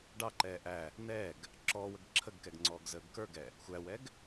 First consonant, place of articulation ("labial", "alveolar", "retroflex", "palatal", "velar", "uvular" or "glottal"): retroflex